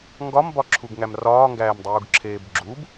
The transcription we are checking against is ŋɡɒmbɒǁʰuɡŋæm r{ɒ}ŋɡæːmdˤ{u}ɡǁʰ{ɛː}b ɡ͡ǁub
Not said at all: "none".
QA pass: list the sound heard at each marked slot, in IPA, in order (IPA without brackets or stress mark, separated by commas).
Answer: ɒː, uː, eː